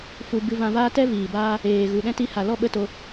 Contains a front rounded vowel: no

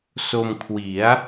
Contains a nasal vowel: no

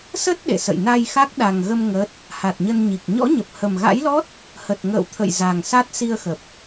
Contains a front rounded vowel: no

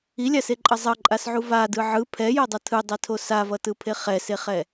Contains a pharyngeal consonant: yes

